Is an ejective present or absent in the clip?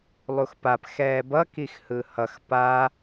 absent